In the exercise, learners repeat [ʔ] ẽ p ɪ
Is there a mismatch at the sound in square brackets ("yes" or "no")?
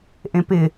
no